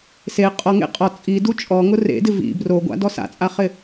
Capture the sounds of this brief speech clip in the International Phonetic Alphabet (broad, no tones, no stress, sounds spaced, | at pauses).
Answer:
s e qʼ ɔ ŋ ḛ qʼ ɔ t͡sʼ i d u t͡ʃʼ ɔ ŋ ʊ r ḛ d ɪ v ḭ b r o ɡʷ a̰ d ɔ s a̰ t͡sʼ a χ ɪ